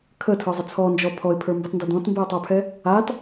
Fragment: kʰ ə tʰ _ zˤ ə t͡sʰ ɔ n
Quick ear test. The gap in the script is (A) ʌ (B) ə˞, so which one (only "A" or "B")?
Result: B